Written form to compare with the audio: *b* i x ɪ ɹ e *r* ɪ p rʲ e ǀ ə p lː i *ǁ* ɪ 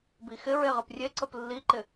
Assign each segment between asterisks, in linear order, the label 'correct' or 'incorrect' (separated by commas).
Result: correct, incorrect, incorrect